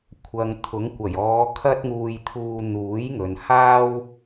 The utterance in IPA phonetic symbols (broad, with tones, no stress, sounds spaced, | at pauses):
kʷʰ ɐ˨ ŋ t̪ʰ ʊ˨˥ ŋ kʷ ɐ˨˩ j ɔː˨˧ kʰ ɐ˥ t̚ ŋ uː˧ j t̪ʰ uː˧ n̪ uː˨˥ j ŋ ɵ˨ n h aː˥ w